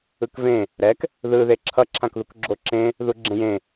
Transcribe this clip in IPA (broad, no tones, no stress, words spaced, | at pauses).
ɯkvẽ | ɾɛk | ðɯ ðeǁʰʌ ǁʰãkðukɡ͡ǁoǁẽ | ðuɡ͡ǁẽjẽ